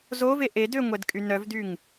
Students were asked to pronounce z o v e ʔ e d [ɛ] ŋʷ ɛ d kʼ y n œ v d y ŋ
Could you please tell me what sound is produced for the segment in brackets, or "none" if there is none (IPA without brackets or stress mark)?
ø